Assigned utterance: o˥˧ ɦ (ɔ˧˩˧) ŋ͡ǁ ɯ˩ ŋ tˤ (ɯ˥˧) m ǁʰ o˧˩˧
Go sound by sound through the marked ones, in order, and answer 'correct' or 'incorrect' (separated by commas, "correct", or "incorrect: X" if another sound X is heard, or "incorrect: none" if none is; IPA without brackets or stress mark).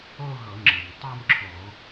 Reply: incorrect: ɤ˧˩˧, correct